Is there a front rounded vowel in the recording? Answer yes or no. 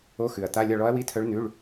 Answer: yes